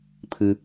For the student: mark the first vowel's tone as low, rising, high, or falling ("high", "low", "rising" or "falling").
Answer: low